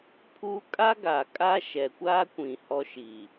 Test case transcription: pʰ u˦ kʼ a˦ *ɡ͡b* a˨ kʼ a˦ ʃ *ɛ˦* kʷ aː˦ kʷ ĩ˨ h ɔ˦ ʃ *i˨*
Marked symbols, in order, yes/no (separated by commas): no, no, yes